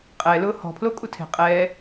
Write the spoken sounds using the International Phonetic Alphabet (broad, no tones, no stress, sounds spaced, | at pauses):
qʼ ɛ l ʊː h ɔ̤ pʰ l o kʼ u tʰ e̤ qʼ ɛː